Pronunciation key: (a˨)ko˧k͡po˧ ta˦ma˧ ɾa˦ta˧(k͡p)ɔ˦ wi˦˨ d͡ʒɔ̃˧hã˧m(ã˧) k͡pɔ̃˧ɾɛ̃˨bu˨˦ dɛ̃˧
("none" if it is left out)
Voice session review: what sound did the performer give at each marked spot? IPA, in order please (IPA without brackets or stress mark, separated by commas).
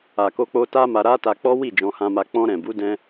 a˨, k͡p, a˧